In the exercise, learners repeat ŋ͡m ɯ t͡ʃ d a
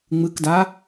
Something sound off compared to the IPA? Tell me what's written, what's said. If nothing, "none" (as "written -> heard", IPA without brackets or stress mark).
t͡ʃ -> k